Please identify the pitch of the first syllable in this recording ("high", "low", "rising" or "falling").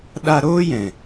high